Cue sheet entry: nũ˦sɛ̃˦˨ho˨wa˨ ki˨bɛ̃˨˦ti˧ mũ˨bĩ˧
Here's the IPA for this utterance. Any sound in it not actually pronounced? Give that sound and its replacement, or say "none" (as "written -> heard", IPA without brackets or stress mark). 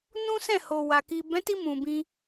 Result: none